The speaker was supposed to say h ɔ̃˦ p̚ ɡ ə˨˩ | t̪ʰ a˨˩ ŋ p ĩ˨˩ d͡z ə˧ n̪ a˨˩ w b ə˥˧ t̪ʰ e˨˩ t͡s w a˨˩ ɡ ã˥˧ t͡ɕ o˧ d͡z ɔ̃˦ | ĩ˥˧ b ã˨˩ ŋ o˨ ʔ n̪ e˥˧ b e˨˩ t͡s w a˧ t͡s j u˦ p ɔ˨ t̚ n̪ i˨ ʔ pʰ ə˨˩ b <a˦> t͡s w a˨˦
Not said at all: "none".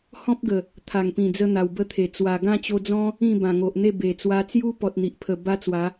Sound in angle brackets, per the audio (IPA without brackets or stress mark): a˦